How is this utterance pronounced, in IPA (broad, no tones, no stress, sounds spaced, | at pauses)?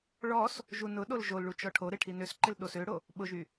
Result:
ɭ ɔ s | ʒ u n ʊ ɗ o l ʒ o l ɭ u t͡ʃ ɔ ʈʰ o ɾ ɪ ʈʰ i n ø s ǃ ɪ l ɗ o s ø ɽ o | ɓ ʊ ʒ y